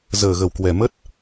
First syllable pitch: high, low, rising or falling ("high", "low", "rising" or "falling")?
low